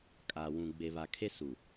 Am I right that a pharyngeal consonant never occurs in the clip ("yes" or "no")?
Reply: yes